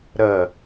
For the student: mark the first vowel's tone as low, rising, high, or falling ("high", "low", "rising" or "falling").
falling